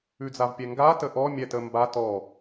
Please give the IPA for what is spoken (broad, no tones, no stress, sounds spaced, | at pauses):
ʉ d͡z a v pʲ ɛ ŋ ɡ a t ə ʔ ɔ mʲ ɛ t ə m b a t ɔ